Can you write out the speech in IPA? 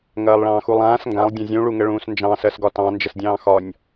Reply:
ŋ ɐː lˠ ɭ ɑ̃ː x u lˠ ãː s ŋ ɡ ã lˠ dʲ ɐ̃ zʲ ũ ɭ u ŋ ə ɭ ũː s n d͡ʒ ɑ̃ s ɜ s ɡ ɒ t ɑ̃ n d͡ʒ ə s dʲ ɑ̃ː x ɒ nʲ

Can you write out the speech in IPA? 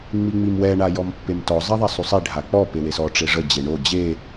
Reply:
ŋ͡m i ŋ͡m i m w ɛ ɳ a j ɔ m pː e m t ɔ zˤ ɛ ðˤ a sˤ y sˤ i ɖʱ a k͡p ɔ p e w e s ɔ ʈ͡ʂ e ʐ ə d͡ʑ e ɳ o d͡ʑ e

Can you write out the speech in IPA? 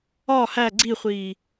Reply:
ɒ h æ ɡ͡ǀ i χʷ iː

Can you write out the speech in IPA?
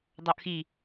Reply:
dˤ o ʔ x i

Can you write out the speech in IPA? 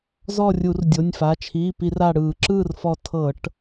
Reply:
z ɔ˥˨ rʲ u˧˩˧ r dʲ o˩˧˩ nʲ f a˩˧˩ t͡ʃʰ iː˩˧˩ p i˧˩˧ r a˧˩ ɽ ɯː˧˩˧ ǁ ɯː˥˨ r f ɔ˧˩ tʰ ɤ˧˩˧ ʈ

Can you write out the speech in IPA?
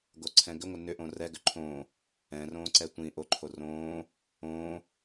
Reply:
ɡ o ǀʰ ɛ̃ ɡ ʏ ŋʷ ə n ʏ ʔ õ r ɛ ɡ ʏ ǃʰ õ | ɛ̃ r õː ǀ ɛ tʷ ĩ ʔ o ǃʰ o r õː | õː

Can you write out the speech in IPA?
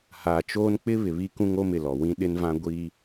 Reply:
h aː˨ t͡ʃ oː˦ n k͡p ɪ˦ β ɪ˨ β i˦ k ũ˦ ŋ o˦ m ɪ˨ l ɔ˨ w ĩ˦ ɗ ɪ˦ n v ã˦ ɡʷ i˦

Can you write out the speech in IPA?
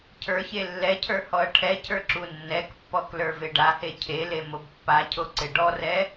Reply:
cʰ ə˞ ç e lː ɛ cʰ ə˞ h ɔ ɐ̯ ʈʰ ɛ cʰ ə˞ ǁ u nː ɛ k pː ɔ k l ə˞ v e ɖ a h e cʰ e l e m o b pː a cʰ o ǀ e ɖ ɔ r ɛ

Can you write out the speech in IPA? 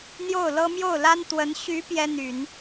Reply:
n̪ j o˥˩ ʊ̯ l ɤ˥ m j o˥˩ ʊ̯ l a˥ n t̪ w ə˧˥ n ɕ y˧˥ p j ɛ˥ n̪ y˨˩˦ n

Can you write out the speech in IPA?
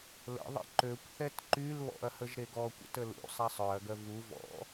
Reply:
l ə̰ ðˤ ə̰ ǃ ø kʷ θ ɛ t ǃ y l β ɔ̰ ɐ̯ h ə ʒ ɾ e ɡ ɔ kʷ ə̰ t ə l ṵ sˤ ɛ sˤ œ ɐ̯ ɡ œ v u v ɔ̰

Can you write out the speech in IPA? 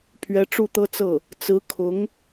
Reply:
pʰ ɥ ɛ˧˥ ʈ͡ʂ u˥˩ t̪ ɤ˥ t͡s ɤ˥˩ | t͡s ɹ̩˧˥ kʰ ʊ˧˥ ŋ

